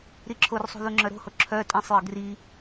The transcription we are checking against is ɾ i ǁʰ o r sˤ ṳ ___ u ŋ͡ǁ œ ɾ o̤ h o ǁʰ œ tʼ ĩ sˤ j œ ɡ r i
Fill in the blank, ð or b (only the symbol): ð